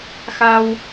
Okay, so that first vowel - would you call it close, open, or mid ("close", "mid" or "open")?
open